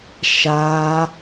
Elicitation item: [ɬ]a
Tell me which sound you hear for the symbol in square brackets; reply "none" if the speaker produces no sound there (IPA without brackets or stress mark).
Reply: ʃ